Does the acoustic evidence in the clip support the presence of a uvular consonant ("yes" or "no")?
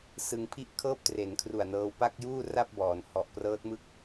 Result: no